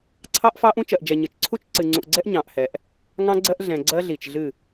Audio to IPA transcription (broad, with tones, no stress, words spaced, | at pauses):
ǀʰɑ˦ʔfɑ˦ʔũ˦ t͡ʃɜ˨ʔd͡ʒɛ˨ ɲɨ˨t͡ʃǀʰu˦t͡ʃ ǀɨ˨ŋ͡ǀũ˨ʔɡ͡ǀɛ˦ʔ ɲɑ̃˨ʔhɛ˨ʔ | ŋɑ̃˦ɡ͡ǀɜ˦ʔ ɮɛ̃˨ɡ͡ǀɜ˦ɮi˨t͡ʃɮɨ˦˨